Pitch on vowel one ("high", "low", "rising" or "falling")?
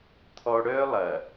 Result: high